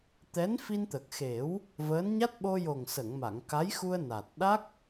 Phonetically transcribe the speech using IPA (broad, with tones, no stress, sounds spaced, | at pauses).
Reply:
t̪ ɛ˧˥ n f i˧ n t̪ ə˨˩ k̚ x e˨˩˦ w | v əː˧˥ n ɲ a˦˥ t̚ ɓ o˧ j o˨˩ ŋ s ə˨˩˨ ŋ m a˨˩˨ ŋ k a˧˥ j x u˧ ə̯ n a˨˩ t̚ ɗ a˦˥ k̚